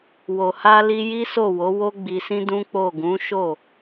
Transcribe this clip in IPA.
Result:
w o˨ h a˧ l i˧ j i˦ s o˦˨ w o˨˦ w o˦ ɡ͡b i˧ s ĩ˦ d ũ˦ k͡p o˦˨ ɡ ũ˨˦ ʃ o˦˨

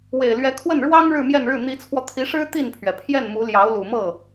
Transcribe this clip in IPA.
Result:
w e˨˩ ɪ̯ l ɥ ɛ˧˥ kʰ w ə˥˩ n ɻ w ɑ˥ ŋ ɻ ɻ̩˥˧ m j ɛ˥˧ n ɻ ɻ̩˥˩ n̪ i˧˥ t͡sʰ w ɔ˧ t̪ʰ i˧˥ ʂ ɻ̩˥ t̪ i˥˩ n pʰ ɥ ɛ˩ pʰ j ɛ˥˩ n m u˧˥ l j ɑ˧˥ ʊ̯ l u˨˩ m ɤ˥˩

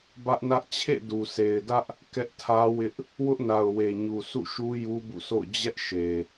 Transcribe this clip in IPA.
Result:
b ä˦ ʔ n ä˦ ʔ t͡ɕʰ ḛ˦˨ d u˨ s e˨ ɪ̯ d ä˦ ʔ | k ɛ˦ ʔ tʰ ä˦ w ɪ˦ ʔ | w ʊ˦ ʔ n a˨ ʊ̯ w e˨ ɲ u˨ s ṵ˦˨ ʃ u˦ j u˦ b ṵ˦˨ s o̰˦˨ ʊ̯ d͡ʑ ɛ˦ ʔ ʃ e˨

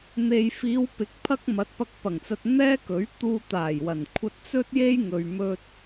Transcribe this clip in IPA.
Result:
n̪ e˨ j f iː˨˧ w p ɪ˨˥ k̚ pʰ ɐ˥ k̚ m ɐ˨˥ t̚ p ɐ˧ k̚ p ɐ˨˩ ŋ t͡s ɐ˧ t̚ n̪ ɛː˥ k ɵ˨˥ ɥ t̪ uː˧ t̪ aː˨˩ j w ɐ˨˩ n kʷʰ ɐ˧ t̚ t͡s ɵ˥ t̚ j e˥ j ŋ ɵ˧ ɥ m ɵ˥ t̚

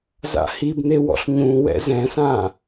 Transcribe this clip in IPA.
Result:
z a̰ h i b n̪ e w ɔ̰ ɬ ɲ ũ w ɛ̰ z ɛ̃ s ã

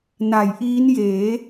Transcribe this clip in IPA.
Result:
n a˩˦ j ʔ iː˦˥ n j eː˩˦

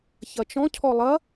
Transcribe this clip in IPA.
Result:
ç ɐ t͡ʃ ɔ̃ cʰ ɔ lˠ ɐ

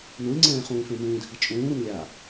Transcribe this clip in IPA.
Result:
n u lʲ ŋ͡ǀ ɛ̃ː χ ũː f ẽ m ũː dʱ i t͡ʃʼ ũː ɾ u n lʲ a

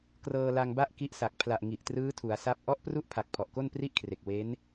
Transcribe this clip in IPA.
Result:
k r ɤː˧ l a˧ ŋ b a˥˩ ʔ k i˦˥ ʔ s a˨˩ k̚ pʰ l a˨˩ ʔ ŋ i˨˩ ʔ t r ɯː˦˥ tʰ u˩˦ a̯ s a˥˩ p̚ ʔ ɔ˦˥ ʔ p r u˥˩ ʔ pʰ a˨˩ k̚ pʰ ɔ˨˩ ʔ k o˥˩ n p r i˥˩ ʔ kʰ r e˨˩ k̚ w e˦˥ n

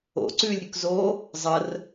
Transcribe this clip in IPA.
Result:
o̰ ǀ ʉː lʲ ɾʲ ʉ k z o | zˤ ə r

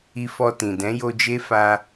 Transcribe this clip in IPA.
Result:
i˧ f ɔ˧ t ĩ˨ d ɛ̃˨˦ j o˧ d͡ʒ e˦ f a˧

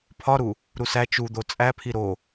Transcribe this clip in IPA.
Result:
pʰ ɒ ɾ u | ɾ u s æ t͡ʃ u d̪ o t͡sʼ æ pʰ i ɾ o

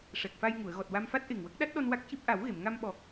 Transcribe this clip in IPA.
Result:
ʂ ɛ˨˩ k̚ f a˧ j ŋ u˨˩˨ ə̯ ɣ ɔ˨˩ t̚ w a˧ m f a˦˥ t̚ ʔ e˨˩ ŋ w ə˦˥ k̚ ɗ a˦˥ t̚ ɗ ɔ˧ n w a˦˥ k̚ c i˦˥ p̚ ʔ a˨˩˦ w ɣ e˨˩˨ m ŋ a˧ m ɓ ɔ˨˩ k̚

